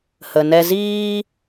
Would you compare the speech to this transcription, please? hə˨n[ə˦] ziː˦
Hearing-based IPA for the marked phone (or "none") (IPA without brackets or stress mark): ɛ˦